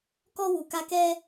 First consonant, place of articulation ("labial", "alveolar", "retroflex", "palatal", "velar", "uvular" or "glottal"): velar